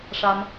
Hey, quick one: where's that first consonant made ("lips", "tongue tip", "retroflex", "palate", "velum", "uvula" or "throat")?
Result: retroflex